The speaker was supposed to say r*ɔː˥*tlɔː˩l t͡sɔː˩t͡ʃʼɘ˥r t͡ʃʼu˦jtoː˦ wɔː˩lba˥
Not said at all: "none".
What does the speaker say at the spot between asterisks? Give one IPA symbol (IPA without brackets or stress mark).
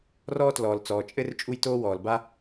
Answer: ɔː˦